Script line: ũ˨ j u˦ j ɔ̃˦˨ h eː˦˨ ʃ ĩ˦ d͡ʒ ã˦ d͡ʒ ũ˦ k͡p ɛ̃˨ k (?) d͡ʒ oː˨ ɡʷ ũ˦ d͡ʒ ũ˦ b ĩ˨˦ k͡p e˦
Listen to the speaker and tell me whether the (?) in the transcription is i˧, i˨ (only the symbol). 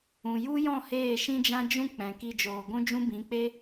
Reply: i˧